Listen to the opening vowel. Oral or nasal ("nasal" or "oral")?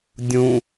nasal